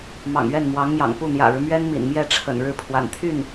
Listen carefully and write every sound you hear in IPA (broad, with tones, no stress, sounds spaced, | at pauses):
m ɑ̰˨˩ ŋ ɥ ɛ˥˩ n m w ɑ˧˥ ŋ m j ɑ̰˨˩ ŋ p u˥˩ n̪ j ä̰˨˩ ɻ ɻ̩˦ m ɥ ɛ˥ n m ḭ˨˩ n m j ɛ˥˩ ʈ͡ʂʰ ə̰˨˩ n ɻ ɻ̩˥˩ pʰ w a̰˨˩ n t̪ʰ y˥˩ n